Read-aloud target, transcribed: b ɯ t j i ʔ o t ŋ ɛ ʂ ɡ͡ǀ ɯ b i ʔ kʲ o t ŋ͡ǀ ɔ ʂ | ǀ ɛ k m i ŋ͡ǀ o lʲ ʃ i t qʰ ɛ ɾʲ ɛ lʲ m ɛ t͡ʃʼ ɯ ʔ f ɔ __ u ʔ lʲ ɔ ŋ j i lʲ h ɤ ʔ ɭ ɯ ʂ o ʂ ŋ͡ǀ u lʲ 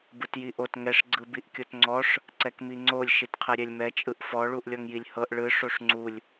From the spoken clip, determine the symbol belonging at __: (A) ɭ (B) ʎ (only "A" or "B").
A